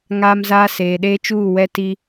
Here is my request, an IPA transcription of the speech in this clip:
ŋ a˦ m z aː˦ s eː˨ ɗ eː˦ t͡ʃ uː˦˨ w ɛ˦ t i˦

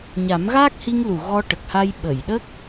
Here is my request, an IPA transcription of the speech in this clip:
ɲ a˨˩˦ m ɣ aː˦˥ k̚ h i˧ ŋ l u˨˩˨ ɣ ɔ˧ ʈ ə˨˩ k̚ h a˧ j ɓ ə˨˩˨ j ɗ ə˦˥ k̚

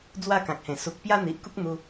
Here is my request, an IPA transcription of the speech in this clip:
d͡z w a˥˧ k ã˨ k̚ h ẽ˨˩ s u˨ k̚ p j a˦ n̪ i˨ ʔ k u˦ k̚ n̪ u˧

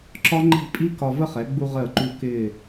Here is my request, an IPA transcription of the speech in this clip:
ǁ ɒ˥ ŋ͡ǃ i̤˥˧ pʼ i˥ k ɒ˧ v ə˥˧ χ ɛ˩˧ ɡ͡b u˧ ʁ əː˧˩ ǃ u˧ k ɪː˧˩

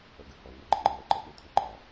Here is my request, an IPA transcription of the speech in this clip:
ʌ ɡ ə h ɔ ŋ ʌ ɡ͡ǃ ə ŋ͡ǃ ə w ʌ ǃ ʌ ɓ ə t̪ʰ e ǃ ɒ

